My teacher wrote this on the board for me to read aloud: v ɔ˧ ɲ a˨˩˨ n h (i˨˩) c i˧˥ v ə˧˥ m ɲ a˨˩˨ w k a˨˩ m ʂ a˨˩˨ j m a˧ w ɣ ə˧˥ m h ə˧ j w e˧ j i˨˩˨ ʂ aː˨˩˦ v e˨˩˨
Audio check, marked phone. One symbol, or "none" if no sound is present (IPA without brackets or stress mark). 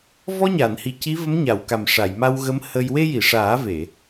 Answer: i˨˩